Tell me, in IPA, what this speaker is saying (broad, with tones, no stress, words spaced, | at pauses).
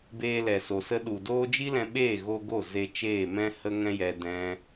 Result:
beː˧lɛ˨so˨sə˧ ɗu˨doː˦ d͡ʒi˦lɛ̃˧ ɓeː˦˨ɣo˧ ɡo˦˨ze˧ t͡ʃeː˦˨mɛ̃˦ hə˦ ŋɛ̃˦jɛ˧ dɛ̃˦